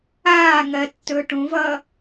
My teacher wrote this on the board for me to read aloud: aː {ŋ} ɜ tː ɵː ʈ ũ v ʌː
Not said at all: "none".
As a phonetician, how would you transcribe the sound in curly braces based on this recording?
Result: ŋ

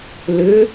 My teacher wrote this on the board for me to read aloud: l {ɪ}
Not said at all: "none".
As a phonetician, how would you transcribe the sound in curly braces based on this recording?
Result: ʏ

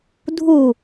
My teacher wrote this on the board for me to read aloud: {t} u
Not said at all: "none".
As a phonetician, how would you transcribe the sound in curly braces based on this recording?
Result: dʱ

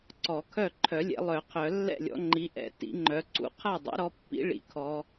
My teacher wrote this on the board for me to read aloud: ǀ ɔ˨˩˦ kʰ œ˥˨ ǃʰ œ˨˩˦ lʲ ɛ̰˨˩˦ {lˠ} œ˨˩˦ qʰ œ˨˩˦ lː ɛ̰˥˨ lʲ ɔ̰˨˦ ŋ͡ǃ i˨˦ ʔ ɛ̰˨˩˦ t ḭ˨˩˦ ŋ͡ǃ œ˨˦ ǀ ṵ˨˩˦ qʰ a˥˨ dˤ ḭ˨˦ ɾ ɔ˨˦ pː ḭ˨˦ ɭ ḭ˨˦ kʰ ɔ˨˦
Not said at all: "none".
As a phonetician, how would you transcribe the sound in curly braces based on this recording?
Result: lˠ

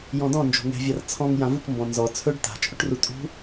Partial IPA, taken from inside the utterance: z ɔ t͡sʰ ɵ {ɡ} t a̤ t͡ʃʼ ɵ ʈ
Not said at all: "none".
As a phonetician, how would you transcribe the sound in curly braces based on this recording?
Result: ɖ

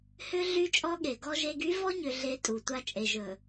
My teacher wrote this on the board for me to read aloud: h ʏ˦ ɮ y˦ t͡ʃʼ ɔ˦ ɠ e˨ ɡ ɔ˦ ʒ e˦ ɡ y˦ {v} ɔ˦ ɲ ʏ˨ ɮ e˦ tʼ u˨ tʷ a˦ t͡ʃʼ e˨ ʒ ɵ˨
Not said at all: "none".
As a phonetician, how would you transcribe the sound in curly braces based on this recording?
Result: v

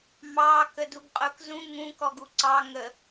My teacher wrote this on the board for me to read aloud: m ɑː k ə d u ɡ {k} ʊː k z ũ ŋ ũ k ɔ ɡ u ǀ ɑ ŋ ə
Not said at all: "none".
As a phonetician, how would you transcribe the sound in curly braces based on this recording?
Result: qʼ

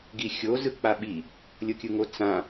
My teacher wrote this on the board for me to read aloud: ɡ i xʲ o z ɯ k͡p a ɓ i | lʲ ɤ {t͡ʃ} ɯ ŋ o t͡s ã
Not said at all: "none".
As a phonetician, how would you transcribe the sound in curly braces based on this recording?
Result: kʲ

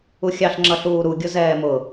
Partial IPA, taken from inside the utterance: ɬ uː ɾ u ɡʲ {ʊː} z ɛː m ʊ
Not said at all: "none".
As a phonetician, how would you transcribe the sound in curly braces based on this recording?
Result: ʊ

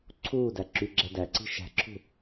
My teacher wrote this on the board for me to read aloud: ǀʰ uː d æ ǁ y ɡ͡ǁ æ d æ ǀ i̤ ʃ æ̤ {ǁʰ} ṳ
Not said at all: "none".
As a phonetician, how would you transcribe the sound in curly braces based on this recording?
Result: ǁʰ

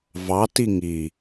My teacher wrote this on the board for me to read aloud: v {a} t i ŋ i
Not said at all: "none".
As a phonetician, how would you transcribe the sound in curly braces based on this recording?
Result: ɑ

